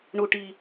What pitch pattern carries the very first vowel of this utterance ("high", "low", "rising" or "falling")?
low